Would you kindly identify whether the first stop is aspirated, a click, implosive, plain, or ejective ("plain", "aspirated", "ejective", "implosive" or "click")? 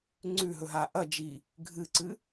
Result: click